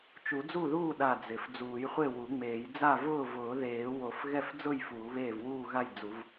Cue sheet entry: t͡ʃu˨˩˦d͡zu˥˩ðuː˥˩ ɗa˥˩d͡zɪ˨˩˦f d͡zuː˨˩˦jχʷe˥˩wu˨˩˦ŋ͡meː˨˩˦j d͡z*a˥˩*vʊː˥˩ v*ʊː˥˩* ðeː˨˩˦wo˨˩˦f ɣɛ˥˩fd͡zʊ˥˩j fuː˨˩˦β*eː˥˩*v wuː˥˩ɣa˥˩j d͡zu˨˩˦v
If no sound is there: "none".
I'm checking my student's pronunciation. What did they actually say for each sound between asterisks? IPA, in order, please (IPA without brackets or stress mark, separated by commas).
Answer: a˥˩, ʊː˨˩˦, eː˥˩